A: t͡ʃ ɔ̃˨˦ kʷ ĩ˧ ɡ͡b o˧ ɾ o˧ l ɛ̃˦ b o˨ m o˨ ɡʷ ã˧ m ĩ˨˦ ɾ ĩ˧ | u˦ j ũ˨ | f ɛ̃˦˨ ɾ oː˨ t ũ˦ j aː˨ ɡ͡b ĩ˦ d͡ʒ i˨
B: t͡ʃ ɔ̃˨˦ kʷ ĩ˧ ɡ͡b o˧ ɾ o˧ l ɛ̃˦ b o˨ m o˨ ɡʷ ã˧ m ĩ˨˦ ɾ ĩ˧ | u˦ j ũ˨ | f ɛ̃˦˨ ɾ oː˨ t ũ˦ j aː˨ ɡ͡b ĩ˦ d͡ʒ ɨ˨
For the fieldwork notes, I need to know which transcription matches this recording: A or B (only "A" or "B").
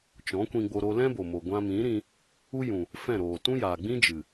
B